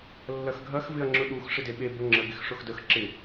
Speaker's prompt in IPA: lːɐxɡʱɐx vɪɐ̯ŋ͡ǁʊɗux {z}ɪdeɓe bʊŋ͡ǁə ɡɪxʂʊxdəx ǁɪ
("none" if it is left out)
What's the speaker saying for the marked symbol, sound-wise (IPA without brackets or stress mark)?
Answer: ʂ